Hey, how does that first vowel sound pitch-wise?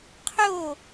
falling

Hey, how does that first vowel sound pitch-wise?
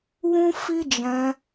high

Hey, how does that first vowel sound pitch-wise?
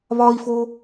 high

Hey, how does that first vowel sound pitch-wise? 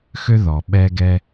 high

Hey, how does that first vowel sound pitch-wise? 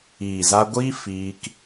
low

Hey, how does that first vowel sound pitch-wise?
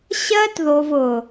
high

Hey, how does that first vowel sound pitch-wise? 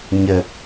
low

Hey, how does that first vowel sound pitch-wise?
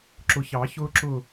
low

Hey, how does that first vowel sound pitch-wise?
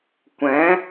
rising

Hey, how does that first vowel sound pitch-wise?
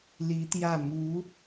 rising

